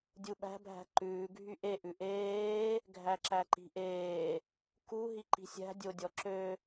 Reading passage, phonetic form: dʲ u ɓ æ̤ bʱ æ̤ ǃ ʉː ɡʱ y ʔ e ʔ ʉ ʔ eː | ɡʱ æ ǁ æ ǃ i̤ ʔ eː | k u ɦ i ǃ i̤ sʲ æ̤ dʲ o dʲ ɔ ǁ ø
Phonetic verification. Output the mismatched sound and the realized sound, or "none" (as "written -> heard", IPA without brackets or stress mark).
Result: none